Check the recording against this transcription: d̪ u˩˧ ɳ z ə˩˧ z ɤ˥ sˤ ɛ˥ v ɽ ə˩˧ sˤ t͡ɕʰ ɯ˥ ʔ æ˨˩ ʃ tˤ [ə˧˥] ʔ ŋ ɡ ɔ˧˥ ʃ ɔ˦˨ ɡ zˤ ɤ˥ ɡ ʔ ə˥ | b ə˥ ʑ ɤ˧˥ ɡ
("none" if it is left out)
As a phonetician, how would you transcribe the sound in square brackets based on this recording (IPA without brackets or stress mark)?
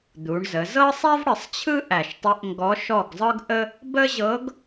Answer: ə˧˥